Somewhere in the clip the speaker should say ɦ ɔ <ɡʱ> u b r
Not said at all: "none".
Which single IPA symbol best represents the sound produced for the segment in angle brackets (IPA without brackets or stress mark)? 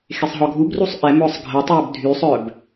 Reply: ɡʱ